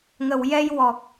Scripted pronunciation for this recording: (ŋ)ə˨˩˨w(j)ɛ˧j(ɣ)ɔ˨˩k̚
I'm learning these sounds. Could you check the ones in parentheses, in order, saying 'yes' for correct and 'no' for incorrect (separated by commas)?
yes, yes, no